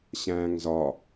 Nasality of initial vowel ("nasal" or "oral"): nasal